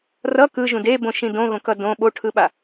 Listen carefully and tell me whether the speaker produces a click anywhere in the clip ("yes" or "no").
no